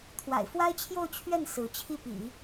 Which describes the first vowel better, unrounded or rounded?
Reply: unrounded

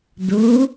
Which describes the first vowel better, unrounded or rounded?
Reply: rounded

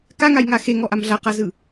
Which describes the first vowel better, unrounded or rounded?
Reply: unrounded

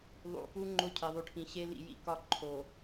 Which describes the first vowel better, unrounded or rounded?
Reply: rounded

